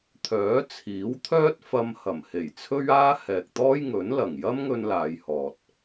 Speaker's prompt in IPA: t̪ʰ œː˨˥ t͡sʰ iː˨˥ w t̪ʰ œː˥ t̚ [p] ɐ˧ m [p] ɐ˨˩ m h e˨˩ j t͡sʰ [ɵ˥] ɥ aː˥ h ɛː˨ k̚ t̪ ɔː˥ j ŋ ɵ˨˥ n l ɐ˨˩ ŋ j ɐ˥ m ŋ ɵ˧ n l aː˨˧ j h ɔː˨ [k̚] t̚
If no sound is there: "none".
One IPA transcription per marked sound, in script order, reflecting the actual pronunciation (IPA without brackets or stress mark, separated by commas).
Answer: f, h, ɵ˥, none